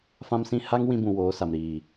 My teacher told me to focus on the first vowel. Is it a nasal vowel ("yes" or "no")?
yes